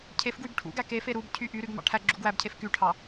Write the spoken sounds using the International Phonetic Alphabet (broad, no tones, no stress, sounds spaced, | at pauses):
cʰ e f ɡ w y b ʈʰ ṵ ɡ æ k e f e ɾ u b cʰ y ʔ y ɾ y ɡ m ɑ̰ ʈʰ æ ɡ͡ǁ u ɡ w æ b cʰ e f k y ʈʰ ɑ